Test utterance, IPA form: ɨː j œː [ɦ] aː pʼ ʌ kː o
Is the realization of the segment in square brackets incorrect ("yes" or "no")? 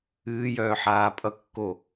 yes